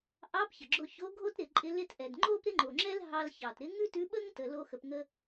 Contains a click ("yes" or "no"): yes